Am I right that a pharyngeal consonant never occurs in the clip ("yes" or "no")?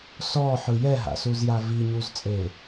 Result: no